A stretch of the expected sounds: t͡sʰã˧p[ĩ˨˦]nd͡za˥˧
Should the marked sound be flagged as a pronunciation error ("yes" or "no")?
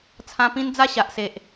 yes